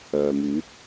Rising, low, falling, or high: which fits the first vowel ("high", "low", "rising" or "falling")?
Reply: low